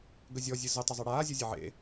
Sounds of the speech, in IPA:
ɡ ə zʲ ɔ zʲ ɨ z ə tˤ ə zˤ ɘ ɽ aː zʲ ɔ zʲ ɘ ʕ ḛ

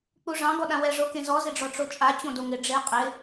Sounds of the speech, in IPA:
k͡p u ʐ ɑ̃ ɡ ɔ ɗ ã w ɛ ʐ o k ẽ z ɔ z ɪ ɖ͡ʐ ɔ ʈ͡ʂ o t͡ʃʼ a t͡ɕ õ d o ŋ ɪ ɖ͡ʐ e qʼ ɪ

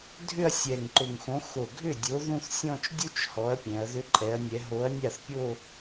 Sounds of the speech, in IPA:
dʱ ʏ˥˧ ɐ̯ sʲ ɛ˨˩ ŋ ǃ ʊ˨˩ ŋ x õ˨˥ x o˨˩ ɡʱ ʏ˥˩ dʲ o˨˥ ð ũ˥˧ θ sʲ ɔ̃˥˧ t͡ʃ dʲ u˥ t͡ʃ h ɔ˨˥ ɐ̯ pʲ ɛ̃˩˧ ɐ̯ ð ʏ˨˥ ǃʼ ɛ˩˧ ɐ̯ nʲ ɛ˩˧ ɦ o˨˥ ɐ̯ nʲ a˥˩ θ pʲ o˥˧

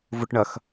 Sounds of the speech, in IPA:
v ʊ ʈ ɳ ɐ x

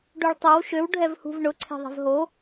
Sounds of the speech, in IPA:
ɖ u ɭ tˤ o w ʃ ø w ɖʱ ɛ v h ṳ v ɳ ʊ ǀʰ e̤ ðˤ e̤ v ɦ o

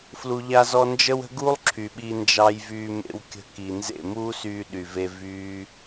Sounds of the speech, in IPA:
f l u˧ ʎ a˦ z ɔ˦ n d͡ʒ ə˦ w ə̤˦ ɡ u˦ lˠ ǁʰ y˨ ɓ i˧ n d͡ʒ ɑ˧ j v yː˧ m ḛ˧ w kʲ ə̤˧ k i˨ n z ḛ˦˨ m uː˦ s yː˧ ɗ y˨ v e˧ v yː˦

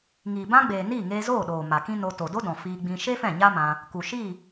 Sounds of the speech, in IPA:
ŋ iː˨ b ã˦ ɡ͡b eː˨ n iː˦˨ ŋ eː˧ z oː˦˨ ɗ oː˨ m a˨ k ĩ˦ n o˧ t o˨ d o˦ d ɔ̃˨ f iː˧ ɡ͡b ĩ˧ ʃ e˦ f ɛ̃˦˨ ɲ a˦ m ã˧ | k u˨ ʃ i˦˨

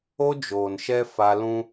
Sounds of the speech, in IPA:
o˦ d͡ʒ oː˨ n ʃ ɛ˦ f a˦ l ũ˦

